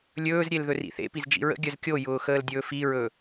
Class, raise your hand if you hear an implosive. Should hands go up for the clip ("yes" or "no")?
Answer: no